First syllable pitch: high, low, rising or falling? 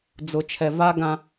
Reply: low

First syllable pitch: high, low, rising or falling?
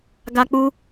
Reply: high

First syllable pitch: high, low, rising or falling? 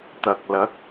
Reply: low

